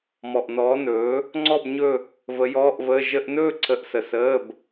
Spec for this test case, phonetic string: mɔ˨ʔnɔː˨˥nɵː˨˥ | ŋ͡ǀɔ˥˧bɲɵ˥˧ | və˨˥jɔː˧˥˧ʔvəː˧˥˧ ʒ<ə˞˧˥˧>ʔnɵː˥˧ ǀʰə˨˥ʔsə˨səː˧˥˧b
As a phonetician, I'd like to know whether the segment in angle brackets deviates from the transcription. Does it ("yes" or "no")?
yes